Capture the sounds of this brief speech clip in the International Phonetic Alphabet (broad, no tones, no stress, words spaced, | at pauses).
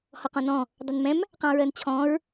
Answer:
hɔqɔ̃nɔ̃ | dˤʊnmɛ̃m | qɑ̃ɹɜnt͡ɕʰɔ̃ɹ